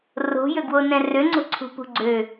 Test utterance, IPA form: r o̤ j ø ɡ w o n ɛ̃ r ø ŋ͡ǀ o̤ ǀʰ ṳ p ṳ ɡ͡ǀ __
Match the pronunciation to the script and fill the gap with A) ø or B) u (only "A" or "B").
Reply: A